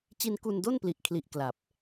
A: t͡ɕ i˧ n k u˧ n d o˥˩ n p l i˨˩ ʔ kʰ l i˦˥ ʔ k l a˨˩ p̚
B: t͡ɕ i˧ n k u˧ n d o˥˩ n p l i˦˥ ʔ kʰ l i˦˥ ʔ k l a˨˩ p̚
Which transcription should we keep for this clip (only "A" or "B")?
A